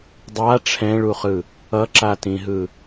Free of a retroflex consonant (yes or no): no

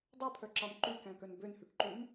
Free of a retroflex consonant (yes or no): no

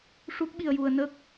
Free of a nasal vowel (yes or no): yes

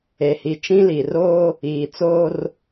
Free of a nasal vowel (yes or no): no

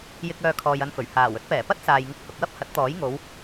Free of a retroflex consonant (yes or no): yes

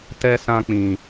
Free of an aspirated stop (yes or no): yes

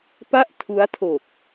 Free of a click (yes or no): yes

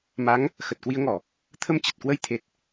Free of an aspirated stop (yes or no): no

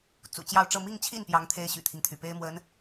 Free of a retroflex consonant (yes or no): no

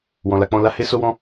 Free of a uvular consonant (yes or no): yes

